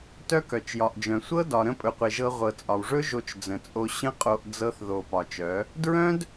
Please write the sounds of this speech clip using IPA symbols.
tœ˦kœ˨t͡ʃjɒ˨ʔd͡ʒœ̃˨ sʷɤ˦ dɒ˨ ɾə̃˦ pʼɵ˧qʷe˧ʒɤ˦ ʁʷɤ˨t͡sʼɒ˨wʐɵ˦ ʒo˧t͡ʃd͡zə̃˨t͡sʼo˧ ɕə̃˦qʼo˧ʔ d͡zɤ˧θðo˨ pɒ˨t͡ʃœ˨˦ | dɹœ̃˦d

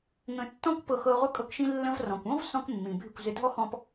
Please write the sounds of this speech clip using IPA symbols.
ŋə̃˧tːɔ̃˦kʷpɤ˧x ɤ˧ʁʷə˦ kʼɤ˧kʃĩ˧ lːə̃˧vrɔ̃˨kʷɔ̃˦vsɔ̃˧k mːĩ˨bʱɪ˦˨kʷzɪ˧ dʱɔ˦xɔ̃˧p

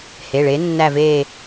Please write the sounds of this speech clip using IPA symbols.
he˩˧˩ ɭe˨˥nːæ˦˨ve˦˨

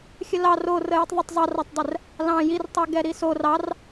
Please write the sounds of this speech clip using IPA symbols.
xʲəlɑr o rəjitˤðˤətˤ zˤɑratˤdˤɛr | lɑ̃ jirtˤeɡɛɾi so rɑr

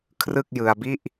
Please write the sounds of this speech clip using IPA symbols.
kʰrɯ˥˩k̚jɯ˧a̯bi˥˩ʔ

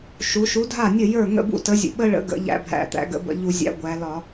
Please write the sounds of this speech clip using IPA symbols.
ʃu˩˧ʃu˨˥dʱa˥˩nʲə˥˩ jə˞˥˩ ŋə̰˥˩bṵ˥˩tə˨˥zʲə̰˨˩ ɓə˦ɭə̰˨˥ɡə̰˩˧ ʎæ̰˦bʱæ̰˧˩˧t̪æ̰˨˥ ɡə̰˨˥bə̰˧˩˧ ʎu˧˩˧zʲæ̰˨˥ ɡʷæ˩˧lɒ˧˩˧

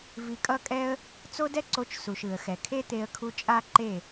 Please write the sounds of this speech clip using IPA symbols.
vi˧kʼʌ˦kʼɛ˦ə̯ | t͡so˦dɛ˦ǀo˧t͡ʃ su˨ʃɯ˨ə̯ xɛ˨kʰe˦t̪e˧ə̯kʰu˧ t͡ʃʼa˦ǃe˦˨

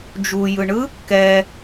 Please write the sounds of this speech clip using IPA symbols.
d͡ʒujɯɳɯ | kɛ

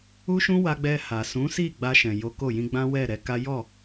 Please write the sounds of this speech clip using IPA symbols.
u˧ʃũ˧ wa˧ɡ͡bɛ˧ha˨ sũ˨˦si˦˨ ɡ͡ba˧ʃɛ̃˨jo˨˦ ko˦˨jĩ˧ɡ͡bã˦ wɛ˦˨ɾɛ˨˦ka˦ jɔ˦˨

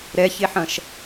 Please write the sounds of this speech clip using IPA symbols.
ɾɛçeħɐ̃ʃ

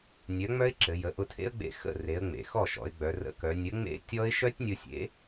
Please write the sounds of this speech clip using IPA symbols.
nʲœ˨˥ŋ͡mœ˦˥ɪ̯ǁɘ˩˧ jə˩˧ʔʊ˧tʰḛ˦˥ə̯ɡ͡bḛ˧ xə̰˥˩ re˩˧ə̯ŋ͡mḛ˩ xɔ˥˩ʃɔ̰˩˧ɪ̯ɡ͡bœ˩˧ rə̰˨˥kœ˩˧ nʲə˨˥ŋ͡mḛ˦˥tʲɔ˦˥ɪ̯ ʃœ˦˥tʲnʲʊ˧sʲḛ˨˥

